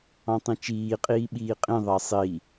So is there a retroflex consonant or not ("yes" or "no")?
no